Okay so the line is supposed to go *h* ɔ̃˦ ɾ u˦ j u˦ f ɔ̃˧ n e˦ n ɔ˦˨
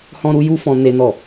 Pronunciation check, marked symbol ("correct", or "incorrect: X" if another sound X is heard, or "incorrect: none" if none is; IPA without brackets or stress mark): correct